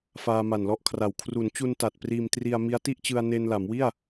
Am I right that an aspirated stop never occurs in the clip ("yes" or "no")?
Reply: no